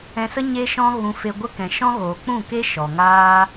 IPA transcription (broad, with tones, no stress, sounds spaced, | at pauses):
ɛ̃˧ s ə˦ ɲ e˦ ʃ ɔ̃˦ ɣ ũ˧ f e˧ ɡʷ ə˦ k ɛ̃˨ ʃ ɔ̃˦ ɣ oː˨ k͡p ũ˦˨ k e˦ ʃ ɔ˨ ŋ aː˦